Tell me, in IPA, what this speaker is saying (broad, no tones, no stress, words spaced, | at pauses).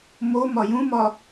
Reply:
momɒ jũmɒ